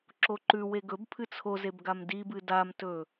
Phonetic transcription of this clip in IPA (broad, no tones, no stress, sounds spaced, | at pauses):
ǁ o ǃ ʉ w e ɡ ɵ b pʰ ɨ t͡sʰ o z e b ɡ a m d i b ɨ d a m t ɵ